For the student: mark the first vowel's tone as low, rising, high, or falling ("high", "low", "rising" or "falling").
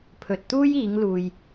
low